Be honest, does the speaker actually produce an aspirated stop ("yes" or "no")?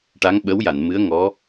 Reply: no